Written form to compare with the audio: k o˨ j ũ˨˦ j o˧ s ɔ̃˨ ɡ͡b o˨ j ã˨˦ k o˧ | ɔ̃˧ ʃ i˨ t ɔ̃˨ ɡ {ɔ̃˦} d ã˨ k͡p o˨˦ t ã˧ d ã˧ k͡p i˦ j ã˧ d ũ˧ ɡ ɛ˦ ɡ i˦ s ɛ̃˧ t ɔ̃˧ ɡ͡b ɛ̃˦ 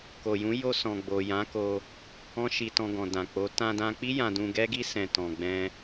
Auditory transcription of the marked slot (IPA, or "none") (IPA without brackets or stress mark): ɔ̃˨